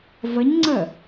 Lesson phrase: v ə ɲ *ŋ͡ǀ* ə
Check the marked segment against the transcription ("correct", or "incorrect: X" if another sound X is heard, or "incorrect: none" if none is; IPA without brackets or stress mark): correct